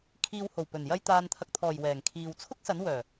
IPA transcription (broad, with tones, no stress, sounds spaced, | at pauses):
kʰ iː˨ w h o˨˩ w p ɵ˨˩ n j ɐ˧ j t̪ aː˨ n t̪ʰ ɐ˨ k̚ t̪ʰ ɔː˨˩ j w ɛː˨˩ ŋ kʰ iː˨ w t͡sʰ ʊ˥ k̚ s ɐ˨˥ n w œː˨˩